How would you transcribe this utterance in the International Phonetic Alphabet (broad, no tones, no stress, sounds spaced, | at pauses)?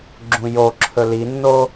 ɡ͡ǁ ũ j o ǁʰ ɵ l i nː o